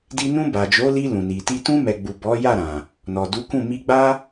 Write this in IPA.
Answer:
di˧nũ˧ ba˨d͡ʒo˨˦li˧ lũ˨ni˨ti˧ tũ˧mɛ˨ɡ͡bu˨ bɔ˨˦ja˦˨ ɾã˨ | nɔ˨du˨˦kũ˦˨ mi˧ɡ͡ba˦

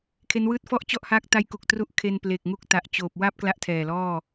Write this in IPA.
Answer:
kʰe˦˥nwɯː˥˩t̚ fɔ˥˩ʔt͡ɕɔ˥˩ʔhaː˦˥k̚ ta˦˥jku˨˩k̚ tru˦˥ʔ kʰe˧nple˨˩k̚ŋu˦˥k̚ ta˨˩ʔt͡ɕoː˨˩p̚wa˥˩p̚ kla˦˥ʔtʰɛː˨˩lɔː˥˩

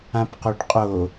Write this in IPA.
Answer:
ãpqoɖqʼo

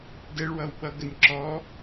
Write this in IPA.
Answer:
dɛɭwʌw ɓʌɡənʲ ǁɔ

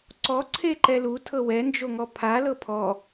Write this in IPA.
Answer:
ǀɔ ǀʰeǃɛlu tʰɤwɛ nd͡ʒoŋɔpʰa lɤpʰɔ

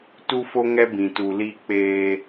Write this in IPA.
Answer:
tu˦fo˦ ŋɛ˦ bĩ˨tu˨ li˦ k͡peː˦

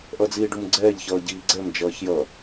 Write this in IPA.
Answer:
ʔʌd͡ziːɖumɡ͡ǀɛːʎ çʌːɟiːɡ͡ǀɛm d͡ʒʌːçjʌ

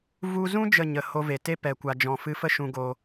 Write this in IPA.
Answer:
vu˧zũ˦ d͡ʒə˦˨ɲə˨ ho˧ve˨te˦ pɛ˨ kʷa˨d͡ʒɔ̃˨fɨ˧fə˦ ʃũ˧ɡo˧

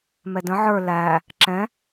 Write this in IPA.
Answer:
mɛdə̃ ʕə˞ læ | ǁɛ̃

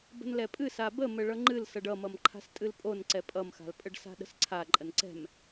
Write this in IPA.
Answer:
bə̤nlɛpʼɨ sabə məɭʌŋ͡ǃɨl sʌɖʌmʌm ǃʰa̤stʼɨlpʼon ǀɛpʼʌmxa̤lpʼəɖ sa̤ɗə̤sǀʰa ǃʼənǀɛ̤m

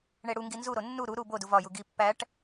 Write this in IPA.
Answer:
ɳeɽuŋɡi nzuɾo nːu ɾu ɾu bo duvɒju ɡi pːæʈ

